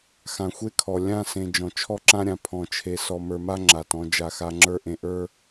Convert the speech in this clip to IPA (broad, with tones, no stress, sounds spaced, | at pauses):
x ã˨ xʷ e˦ kʰ ɔ˨ lʲ ã˦˨ s ẽ˨ d͡ʒ ɔ̃˨ t͡ʃʰ ɔ˦ ǁ ã˦ ɾʲ ã˨ pʰ ɔ̃˨ t͡ʃʰ e˨ s ɔ˨ m ə˞˨ m a˦ ŋ͡ǁ a˨ t ɔ̃˨˦ d͡ʒ a˨ x a˨ ŋ͡ǁ ə˞˦ ʔ ẽ˨ ʔ ə˞˦